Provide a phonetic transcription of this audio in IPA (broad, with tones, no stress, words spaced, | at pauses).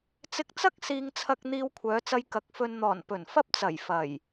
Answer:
t͡sɪ˧k̚t͡sɐ˥k̚ siː˥ŋt͡sʰɐ˥k̚ n̪iː˧wkʷʰœː˨˧t͡sɐ˧j kɐ˨˥k̚fɵ˧n n̪ɔː˨˩npɵ˨˩n fɐ˥p̚t͡sɐ˨˩j fɐ˨˩j